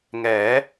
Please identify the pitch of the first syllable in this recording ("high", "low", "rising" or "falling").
rising